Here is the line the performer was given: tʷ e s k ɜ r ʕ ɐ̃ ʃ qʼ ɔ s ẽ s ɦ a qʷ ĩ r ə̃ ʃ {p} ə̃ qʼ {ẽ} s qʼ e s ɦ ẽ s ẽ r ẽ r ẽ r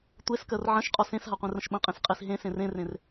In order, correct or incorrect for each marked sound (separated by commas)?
incorrect, correct